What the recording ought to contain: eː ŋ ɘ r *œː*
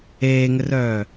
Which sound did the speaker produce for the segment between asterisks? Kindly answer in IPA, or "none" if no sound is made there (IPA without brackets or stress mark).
œː